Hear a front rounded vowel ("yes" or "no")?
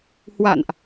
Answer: no